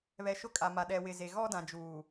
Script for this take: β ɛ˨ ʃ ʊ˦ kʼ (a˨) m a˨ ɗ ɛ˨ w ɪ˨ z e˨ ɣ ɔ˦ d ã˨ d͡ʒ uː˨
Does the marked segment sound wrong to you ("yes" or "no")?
no